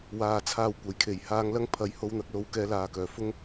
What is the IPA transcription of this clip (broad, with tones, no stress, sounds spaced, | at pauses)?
w aː˨ t͡sʰ aː˧ w kʷ ɐ˨˩ j kʰ e˨˩ j h aː˧ ŋ l ɐ˥ ŋ pʰ ɐ˨˧ j h o˧ w n̪ ɐ˨˥ k̚ l o˨˥ w k ɛː˨˧ l aː˨ k œː˨˩ f ʊ˥ ŋ